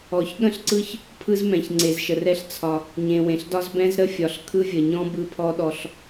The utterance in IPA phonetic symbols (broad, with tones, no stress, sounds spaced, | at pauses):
ɔ˨ ç ɠ ə̃˦ ɬ ǀ ɯ˦ ç | pʰ ɯ˦ z m ɛ̃˨ ç ŋ͡ǀ e˨ z ʃ ə˨ r ɛ˦ ɬ t͡sʰ ɒ˦ | ɲ ẽ˨ w ẽ˨ ɬ d ɒ˦ z b ɛ̃˦ z ɾ ə˦ fʲ ɒ˨ ɬ kʰ ɯ˦ vʲ ə˨ ɲ ɔ̃˦ b ɯ˦ pʰ ɔ˦ ɗ ɔ˦ ɬ